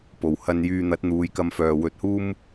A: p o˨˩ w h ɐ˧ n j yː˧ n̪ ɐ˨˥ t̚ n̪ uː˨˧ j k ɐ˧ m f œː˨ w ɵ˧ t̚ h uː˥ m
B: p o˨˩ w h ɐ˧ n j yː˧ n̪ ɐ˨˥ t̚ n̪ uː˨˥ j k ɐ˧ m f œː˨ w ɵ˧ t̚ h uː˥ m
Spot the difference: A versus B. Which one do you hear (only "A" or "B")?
A